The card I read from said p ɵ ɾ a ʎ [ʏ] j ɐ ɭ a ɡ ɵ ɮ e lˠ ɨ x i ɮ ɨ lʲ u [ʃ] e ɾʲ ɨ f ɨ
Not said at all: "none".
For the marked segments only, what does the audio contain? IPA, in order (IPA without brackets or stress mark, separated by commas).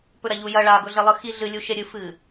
u, ʃ